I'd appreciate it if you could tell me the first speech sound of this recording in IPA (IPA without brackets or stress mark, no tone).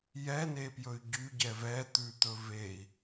j